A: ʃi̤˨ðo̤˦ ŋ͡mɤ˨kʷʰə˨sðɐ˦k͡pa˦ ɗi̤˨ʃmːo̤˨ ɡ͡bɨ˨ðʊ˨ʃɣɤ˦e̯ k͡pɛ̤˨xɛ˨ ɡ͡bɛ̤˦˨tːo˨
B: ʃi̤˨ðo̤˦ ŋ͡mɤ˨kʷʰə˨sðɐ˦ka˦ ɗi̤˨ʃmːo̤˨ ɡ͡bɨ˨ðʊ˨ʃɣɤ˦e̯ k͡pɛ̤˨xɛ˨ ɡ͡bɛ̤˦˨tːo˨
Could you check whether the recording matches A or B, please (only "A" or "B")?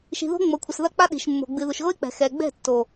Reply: A